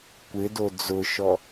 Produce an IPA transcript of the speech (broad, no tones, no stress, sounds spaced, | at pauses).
kʷ ɪ d o d͡z ʊ ʃ ɔ